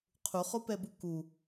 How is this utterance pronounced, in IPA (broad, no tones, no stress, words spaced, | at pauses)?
qʰuχopɛbu ku